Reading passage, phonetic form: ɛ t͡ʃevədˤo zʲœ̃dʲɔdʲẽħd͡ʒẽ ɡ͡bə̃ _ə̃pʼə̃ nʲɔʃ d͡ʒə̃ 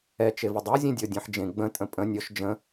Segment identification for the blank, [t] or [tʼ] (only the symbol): tʼ